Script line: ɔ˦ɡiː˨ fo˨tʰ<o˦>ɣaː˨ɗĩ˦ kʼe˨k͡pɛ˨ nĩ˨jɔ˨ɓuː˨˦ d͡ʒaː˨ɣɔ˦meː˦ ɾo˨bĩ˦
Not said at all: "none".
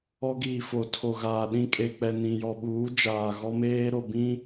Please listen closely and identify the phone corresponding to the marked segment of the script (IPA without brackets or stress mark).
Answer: o˨